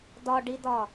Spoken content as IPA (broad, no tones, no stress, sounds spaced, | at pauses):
d ɒ ɖ i d ɒ